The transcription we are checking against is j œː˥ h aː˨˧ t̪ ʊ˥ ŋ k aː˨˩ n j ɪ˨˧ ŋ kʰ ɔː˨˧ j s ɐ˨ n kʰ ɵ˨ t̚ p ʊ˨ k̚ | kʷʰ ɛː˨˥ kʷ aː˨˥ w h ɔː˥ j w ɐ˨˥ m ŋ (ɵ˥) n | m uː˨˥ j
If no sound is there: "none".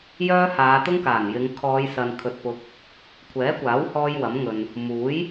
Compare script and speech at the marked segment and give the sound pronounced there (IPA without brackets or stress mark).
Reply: ɵ˨